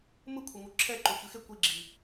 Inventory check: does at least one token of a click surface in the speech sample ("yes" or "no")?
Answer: yes